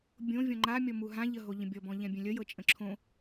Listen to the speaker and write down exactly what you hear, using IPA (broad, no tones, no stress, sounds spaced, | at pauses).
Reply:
bʲ õ vʲ ɔ̃ ŋ͡ǃ a mʲ ɔ m u ɦ ã ʎ ə ɦ o ʎ ə̃ bʲ ɔ b ɔ̃ ʎ ɛ̃ bʲ ɛ̃ lʲ ə j ɤ t͡ʃʼ ə̃ ǁʰ õ